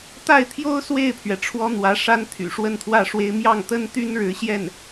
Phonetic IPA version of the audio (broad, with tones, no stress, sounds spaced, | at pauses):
t̪ a˥˩ ɪ̯ t̪ʰ j o˥ ʊ̯ s w e˥˩ ɪ̯ pʰ ɥ ɛ˩ ʈ͡ʂʰ w ɔ˥ n̪ w ä˧˥ ʂ a˥ n t̪ʰ y̰˨˩ ʂ w ə˥˧ n t̪ʰ w ä˥˩ ʂ w e˥ ɪ̯ m j ɑ˥˩ ŋ t̪ ə˥ n t̪ y˥ n ɻ ɻ̩˧˥ ɕ j ɛ˥˩ n